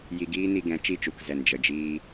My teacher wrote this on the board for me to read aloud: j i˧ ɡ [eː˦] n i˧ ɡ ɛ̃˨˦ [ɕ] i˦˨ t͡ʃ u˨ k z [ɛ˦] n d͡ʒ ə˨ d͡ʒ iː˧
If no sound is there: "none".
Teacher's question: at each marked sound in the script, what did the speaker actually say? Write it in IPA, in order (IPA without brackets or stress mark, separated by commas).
iː˦, t͡ʃ, ɛ˨